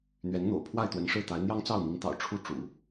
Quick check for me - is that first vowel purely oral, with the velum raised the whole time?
yes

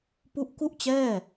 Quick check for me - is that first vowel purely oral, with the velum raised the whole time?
yes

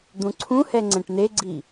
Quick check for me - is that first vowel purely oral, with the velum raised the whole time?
no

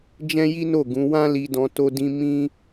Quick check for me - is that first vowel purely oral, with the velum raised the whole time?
no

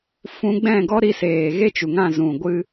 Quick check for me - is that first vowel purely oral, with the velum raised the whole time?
no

